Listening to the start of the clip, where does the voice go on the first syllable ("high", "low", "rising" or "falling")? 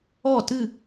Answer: falling